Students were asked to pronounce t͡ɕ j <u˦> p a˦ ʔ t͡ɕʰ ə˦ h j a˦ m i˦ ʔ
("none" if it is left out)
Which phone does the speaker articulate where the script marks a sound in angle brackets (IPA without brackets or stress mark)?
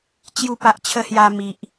u˦